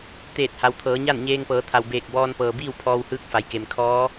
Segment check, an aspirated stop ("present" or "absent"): present